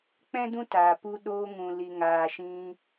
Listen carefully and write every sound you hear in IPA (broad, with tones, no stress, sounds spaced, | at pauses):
k͡p ɛ̃˦ d ũ˦ t aː˨ p u˧ ɗ oː˧ ŋ ũ˨ l i˨ ŋ aː˨ ʃ ĩ˧